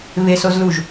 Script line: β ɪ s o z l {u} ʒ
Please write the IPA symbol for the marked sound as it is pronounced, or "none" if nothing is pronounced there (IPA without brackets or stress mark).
u